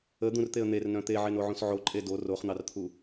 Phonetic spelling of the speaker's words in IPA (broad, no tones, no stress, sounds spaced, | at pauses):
ə d̪ ũ r t̪ e ə̯ n̪ e r n œ̃ t̪ e ʕ e n o ʕ ũ s ʕ o ǃʼ e d o r o χ n̪ ɑ r t̪ʰ u